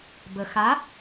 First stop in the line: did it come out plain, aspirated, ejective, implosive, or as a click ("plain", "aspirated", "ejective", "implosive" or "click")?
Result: plain